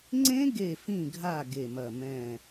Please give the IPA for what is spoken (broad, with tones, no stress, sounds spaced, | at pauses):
ŋ͡ǀ ẽ˦˥ ɡ e˧˩ f ĩ˧˩ ɡʱ a˧˩ ɡ e˧˩ m ɐ˧˩ m ɛ̃˧˩